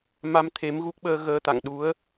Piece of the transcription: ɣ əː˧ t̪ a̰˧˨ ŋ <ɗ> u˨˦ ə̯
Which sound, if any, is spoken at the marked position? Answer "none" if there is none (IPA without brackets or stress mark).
ɗ